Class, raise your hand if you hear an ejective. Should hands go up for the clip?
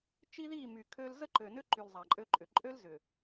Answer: yes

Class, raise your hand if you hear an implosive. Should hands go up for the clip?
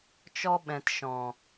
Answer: yes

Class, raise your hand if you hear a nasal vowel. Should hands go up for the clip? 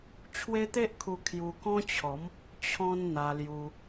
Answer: yes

